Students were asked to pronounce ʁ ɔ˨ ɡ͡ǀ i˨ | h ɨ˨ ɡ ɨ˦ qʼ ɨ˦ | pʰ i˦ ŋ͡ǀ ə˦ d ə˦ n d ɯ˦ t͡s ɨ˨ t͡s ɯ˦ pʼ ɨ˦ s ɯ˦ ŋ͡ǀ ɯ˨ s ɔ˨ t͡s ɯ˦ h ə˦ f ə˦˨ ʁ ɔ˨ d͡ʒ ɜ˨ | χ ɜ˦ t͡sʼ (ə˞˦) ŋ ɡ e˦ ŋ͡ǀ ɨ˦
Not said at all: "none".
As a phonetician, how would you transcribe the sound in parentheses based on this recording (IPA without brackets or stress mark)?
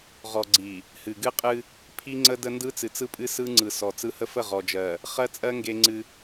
ɜ˦